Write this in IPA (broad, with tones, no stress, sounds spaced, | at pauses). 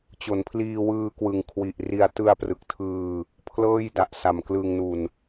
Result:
t͡ɕ o˩˦ n pʰ l iː˧ w ɯː˧ k w ɯ˨˩ ŋ kʰ w i˨˩ ʔ r i˧ a̯ t ɯ˧ a̯ p r ɯ˨˩ k̚ tʰ ɯː˧ | pʰ l ɤː˥˩ j d a˨˩ ʔ s a˨˩ m k l ɯː˧ ŋ n u˧ n